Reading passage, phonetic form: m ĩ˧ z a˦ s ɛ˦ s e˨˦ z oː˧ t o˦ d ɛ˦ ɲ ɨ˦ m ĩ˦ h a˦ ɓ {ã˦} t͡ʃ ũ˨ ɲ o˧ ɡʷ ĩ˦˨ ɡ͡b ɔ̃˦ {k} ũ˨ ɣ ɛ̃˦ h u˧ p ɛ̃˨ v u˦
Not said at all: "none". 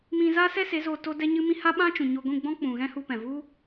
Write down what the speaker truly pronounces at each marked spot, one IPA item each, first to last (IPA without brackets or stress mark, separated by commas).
ã˦, k͡p